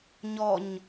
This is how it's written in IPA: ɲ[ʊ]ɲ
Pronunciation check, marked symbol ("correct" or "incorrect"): incorrect